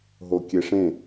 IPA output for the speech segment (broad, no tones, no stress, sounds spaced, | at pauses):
ɦ o kʲ e ʂ ẽ